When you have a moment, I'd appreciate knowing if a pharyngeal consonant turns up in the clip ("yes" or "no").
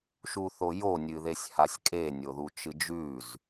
no